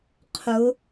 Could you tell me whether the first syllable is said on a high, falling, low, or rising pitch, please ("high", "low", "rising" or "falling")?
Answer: rising